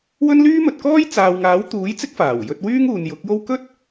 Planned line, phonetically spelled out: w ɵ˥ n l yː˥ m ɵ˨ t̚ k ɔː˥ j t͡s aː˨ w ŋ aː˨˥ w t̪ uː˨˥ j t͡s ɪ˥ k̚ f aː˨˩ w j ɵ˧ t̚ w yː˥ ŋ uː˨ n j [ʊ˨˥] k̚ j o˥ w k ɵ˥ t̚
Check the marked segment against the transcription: correct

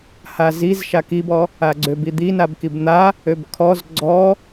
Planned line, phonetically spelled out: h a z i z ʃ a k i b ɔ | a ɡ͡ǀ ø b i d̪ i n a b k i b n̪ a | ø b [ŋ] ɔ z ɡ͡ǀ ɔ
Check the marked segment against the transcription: incorrect: kʰ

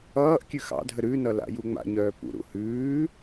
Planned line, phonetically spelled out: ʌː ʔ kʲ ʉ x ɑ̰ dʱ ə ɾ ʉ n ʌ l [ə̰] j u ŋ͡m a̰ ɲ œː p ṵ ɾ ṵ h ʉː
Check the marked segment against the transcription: incorrect: a̰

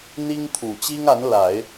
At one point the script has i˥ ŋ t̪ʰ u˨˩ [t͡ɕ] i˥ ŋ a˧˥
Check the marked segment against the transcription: correct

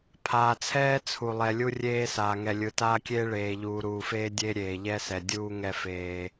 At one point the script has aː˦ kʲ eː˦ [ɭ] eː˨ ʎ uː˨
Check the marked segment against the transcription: correct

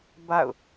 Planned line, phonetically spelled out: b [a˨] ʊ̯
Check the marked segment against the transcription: incorrect: a̰˦˨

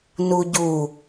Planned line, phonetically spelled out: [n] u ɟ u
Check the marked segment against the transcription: correct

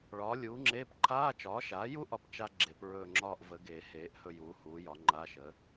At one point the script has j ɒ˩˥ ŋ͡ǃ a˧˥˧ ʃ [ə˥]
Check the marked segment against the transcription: incorrect: ə˩˥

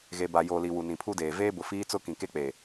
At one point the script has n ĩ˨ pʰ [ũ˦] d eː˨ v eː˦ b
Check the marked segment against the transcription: incorrect: u˦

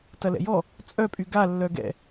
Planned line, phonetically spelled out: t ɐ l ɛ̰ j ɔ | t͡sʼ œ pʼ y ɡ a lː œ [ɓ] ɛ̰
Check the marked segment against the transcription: incorrect: ɡ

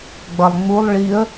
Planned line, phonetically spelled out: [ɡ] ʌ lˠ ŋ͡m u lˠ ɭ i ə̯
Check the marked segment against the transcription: incorrect: ɡ͡b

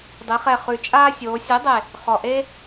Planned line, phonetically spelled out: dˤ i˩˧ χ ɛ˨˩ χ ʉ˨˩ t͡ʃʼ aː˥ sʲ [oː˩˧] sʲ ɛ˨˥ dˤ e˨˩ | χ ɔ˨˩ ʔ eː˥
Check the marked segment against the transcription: correct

